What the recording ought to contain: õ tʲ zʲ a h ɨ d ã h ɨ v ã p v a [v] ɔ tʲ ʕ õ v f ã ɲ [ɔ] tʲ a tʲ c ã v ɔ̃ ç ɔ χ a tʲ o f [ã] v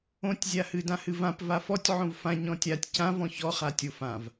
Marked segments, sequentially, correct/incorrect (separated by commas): incorrect, incorrect, correct